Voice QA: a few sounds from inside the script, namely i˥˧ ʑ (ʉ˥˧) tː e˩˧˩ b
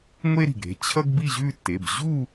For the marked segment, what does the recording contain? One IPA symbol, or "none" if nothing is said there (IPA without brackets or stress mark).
ʉ˥˧